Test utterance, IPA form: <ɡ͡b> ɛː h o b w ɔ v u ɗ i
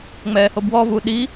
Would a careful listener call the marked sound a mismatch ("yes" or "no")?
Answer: yes